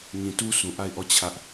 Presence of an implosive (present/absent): absent